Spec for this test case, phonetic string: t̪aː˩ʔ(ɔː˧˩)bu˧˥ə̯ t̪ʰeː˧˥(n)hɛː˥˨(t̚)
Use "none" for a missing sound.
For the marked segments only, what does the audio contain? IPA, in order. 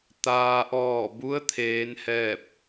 ɔː˧˩, n, p̚

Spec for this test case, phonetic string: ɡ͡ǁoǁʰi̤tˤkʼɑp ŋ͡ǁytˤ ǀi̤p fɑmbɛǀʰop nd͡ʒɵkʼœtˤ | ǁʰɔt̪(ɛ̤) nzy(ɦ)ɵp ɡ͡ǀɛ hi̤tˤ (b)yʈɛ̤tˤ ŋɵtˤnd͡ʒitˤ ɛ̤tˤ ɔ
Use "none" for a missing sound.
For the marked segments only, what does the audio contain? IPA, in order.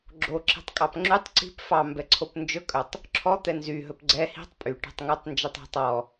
ɛ, ɦ, pʼ

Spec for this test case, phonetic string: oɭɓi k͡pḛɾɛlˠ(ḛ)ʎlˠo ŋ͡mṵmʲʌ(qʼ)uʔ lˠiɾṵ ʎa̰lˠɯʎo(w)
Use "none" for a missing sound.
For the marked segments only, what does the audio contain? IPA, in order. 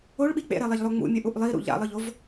e, ʔ, v

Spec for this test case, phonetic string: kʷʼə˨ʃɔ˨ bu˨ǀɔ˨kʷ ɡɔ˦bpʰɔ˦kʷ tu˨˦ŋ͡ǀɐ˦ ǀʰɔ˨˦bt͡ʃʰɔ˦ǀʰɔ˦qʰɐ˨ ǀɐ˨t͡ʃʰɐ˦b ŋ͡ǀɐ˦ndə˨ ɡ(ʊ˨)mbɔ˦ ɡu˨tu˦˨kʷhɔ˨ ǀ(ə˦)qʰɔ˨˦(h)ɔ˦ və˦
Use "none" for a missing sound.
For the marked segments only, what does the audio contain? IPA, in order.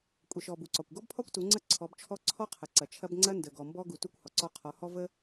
ɔ˨, ɔ˦, h

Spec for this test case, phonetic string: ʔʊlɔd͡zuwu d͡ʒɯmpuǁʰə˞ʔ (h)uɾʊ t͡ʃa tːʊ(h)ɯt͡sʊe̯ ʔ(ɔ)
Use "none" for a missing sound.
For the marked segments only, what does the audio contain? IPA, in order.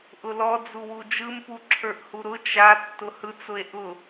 h, h, ʊ

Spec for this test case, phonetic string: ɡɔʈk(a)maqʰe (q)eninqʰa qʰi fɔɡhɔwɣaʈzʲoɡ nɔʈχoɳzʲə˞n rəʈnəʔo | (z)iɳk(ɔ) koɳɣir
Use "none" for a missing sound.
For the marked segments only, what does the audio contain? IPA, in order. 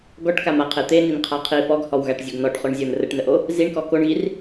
a, t̪, z, ɔ

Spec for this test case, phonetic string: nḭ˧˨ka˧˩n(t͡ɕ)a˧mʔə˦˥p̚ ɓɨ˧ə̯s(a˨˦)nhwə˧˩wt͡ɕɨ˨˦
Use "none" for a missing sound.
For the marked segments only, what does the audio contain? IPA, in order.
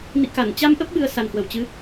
t͡ɕ, a˨˩

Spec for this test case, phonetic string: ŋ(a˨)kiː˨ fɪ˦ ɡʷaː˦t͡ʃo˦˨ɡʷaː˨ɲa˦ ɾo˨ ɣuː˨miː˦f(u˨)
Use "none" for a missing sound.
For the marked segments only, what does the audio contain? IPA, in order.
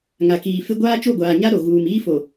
a˨, o˨

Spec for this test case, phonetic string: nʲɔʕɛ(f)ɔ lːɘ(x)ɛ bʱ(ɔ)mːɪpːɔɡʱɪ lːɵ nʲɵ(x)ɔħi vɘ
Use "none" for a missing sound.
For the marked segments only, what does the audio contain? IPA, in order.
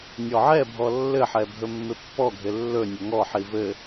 bʱ, ħ, ɵ, ŋ

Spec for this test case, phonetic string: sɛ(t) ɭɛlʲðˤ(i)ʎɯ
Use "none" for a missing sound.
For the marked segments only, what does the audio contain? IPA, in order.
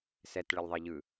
t, i

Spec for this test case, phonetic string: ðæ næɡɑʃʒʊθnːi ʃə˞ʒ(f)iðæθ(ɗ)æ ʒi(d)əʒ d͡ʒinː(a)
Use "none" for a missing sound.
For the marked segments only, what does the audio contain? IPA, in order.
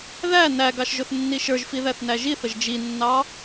f, n, θ, ɑ

